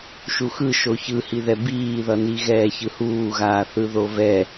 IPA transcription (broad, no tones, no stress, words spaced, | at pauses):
ʃuxɯ ʃoçɯhiðɛ biːðʌni ɣɛːçɯhuːɣaː θɯðovɛ